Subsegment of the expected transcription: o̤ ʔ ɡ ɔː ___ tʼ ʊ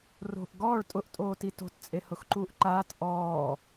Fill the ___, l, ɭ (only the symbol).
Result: ɭ